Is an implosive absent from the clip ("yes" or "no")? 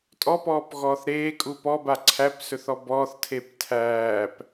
yes